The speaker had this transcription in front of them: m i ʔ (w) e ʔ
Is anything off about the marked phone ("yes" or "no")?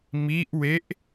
no